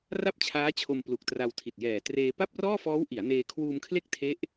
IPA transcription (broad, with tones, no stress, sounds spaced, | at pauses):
r a˥˩ p̚ t͡ɕʰ aː˦˥ t͡ɕʰ o˧ m p l u˨˩ k̚ t r a˧ w tʰ i˨˩ t̚ j ɛː˨˩ t r eː˧ p a˥˩ p̚ r ɔː˥˩ f ɔː˦˥ w ʔ i˩˦ a̯ n eː˧ kʰ w uː˧ m kʰ l e˦˥ k̚ tʰ e˦˥ ʔ